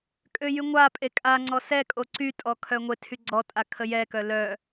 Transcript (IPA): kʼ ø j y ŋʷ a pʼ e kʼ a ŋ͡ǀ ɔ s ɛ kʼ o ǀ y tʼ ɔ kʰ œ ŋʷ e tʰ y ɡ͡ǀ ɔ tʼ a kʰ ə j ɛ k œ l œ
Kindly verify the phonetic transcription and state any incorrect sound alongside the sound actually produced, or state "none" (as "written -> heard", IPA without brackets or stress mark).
none